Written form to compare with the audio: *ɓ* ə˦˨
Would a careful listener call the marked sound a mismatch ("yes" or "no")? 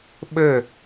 no